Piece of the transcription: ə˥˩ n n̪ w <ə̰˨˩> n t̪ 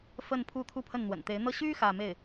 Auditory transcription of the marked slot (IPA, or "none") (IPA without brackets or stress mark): ə̰˨˩